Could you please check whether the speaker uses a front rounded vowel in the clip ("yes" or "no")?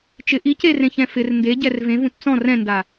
no